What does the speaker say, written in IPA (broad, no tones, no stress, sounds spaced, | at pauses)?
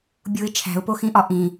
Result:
bʲ u ɪ̯ t͡ʃʰ æ̤ ʊ̯ p o x ĩ ʔ ɒ ʔ ĩ